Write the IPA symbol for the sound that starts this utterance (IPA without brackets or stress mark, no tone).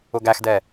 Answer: ʊ